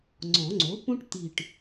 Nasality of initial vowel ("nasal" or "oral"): nasal